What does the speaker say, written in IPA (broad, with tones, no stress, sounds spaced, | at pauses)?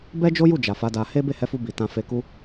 b ɛ˦ d͡ʒ o˦ j u˦˨ d͡ʒ a˨ f a˨˦ d a˧ h e˦ b e˦˨ h ɛ˨˦ f u˧ b i˨ t ã˧ f e˧ k u˦